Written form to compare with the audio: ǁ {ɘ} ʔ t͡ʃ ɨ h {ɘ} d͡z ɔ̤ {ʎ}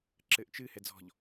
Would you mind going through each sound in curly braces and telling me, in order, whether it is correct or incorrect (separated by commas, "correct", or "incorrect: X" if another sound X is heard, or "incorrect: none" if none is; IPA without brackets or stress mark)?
correct, incorrect: ɛ, correct